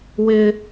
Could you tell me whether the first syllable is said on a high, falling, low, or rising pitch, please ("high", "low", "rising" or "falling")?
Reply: high